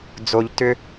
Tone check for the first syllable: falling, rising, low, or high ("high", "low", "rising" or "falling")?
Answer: low